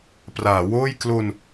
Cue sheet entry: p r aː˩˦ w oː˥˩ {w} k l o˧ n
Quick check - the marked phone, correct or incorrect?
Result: incorrect